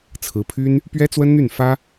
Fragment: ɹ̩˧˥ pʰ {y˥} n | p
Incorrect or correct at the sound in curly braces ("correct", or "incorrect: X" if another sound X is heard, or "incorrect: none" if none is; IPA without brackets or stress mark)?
correct